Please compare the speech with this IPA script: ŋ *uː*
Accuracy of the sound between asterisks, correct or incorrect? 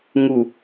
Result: incorrect: u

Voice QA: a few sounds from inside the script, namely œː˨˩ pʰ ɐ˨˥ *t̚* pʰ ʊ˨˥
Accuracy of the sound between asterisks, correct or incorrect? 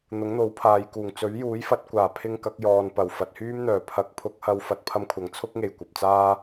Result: incorrect: k̚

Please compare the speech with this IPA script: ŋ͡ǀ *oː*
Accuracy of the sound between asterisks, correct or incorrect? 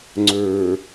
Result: incorrect: ɵː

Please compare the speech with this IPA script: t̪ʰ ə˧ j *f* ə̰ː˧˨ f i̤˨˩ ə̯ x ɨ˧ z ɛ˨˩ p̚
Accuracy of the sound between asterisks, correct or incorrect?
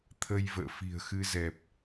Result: incorrect: v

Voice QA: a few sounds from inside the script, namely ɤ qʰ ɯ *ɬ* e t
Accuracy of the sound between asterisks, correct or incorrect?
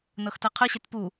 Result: incorrect: ɕ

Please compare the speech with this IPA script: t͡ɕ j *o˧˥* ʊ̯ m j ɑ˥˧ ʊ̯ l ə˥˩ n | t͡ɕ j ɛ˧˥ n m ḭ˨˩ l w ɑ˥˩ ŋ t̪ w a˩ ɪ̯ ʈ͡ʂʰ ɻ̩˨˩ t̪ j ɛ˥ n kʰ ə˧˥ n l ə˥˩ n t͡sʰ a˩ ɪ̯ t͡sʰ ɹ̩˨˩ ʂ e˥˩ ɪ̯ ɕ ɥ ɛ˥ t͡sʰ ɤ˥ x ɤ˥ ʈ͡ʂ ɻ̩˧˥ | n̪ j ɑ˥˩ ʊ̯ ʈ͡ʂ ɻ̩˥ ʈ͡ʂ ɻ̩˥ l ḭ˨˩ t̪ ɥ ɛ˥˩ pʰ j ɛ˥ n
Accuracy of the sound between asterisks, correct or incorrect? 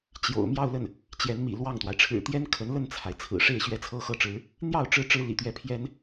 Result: incorrect: o̰˨˩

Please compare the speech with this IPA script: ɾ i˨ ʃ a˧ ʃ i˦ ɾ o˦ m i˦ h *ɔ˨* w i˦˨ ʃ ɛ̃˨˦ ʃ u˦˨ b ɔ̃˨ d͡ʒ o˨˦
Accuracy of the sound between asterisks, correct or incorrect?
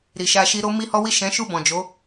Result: incorrect: ɔ˦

